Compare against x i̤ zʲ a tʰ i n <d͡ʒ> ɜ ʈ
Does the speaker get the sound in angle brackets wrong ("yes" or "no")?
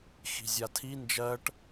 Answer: no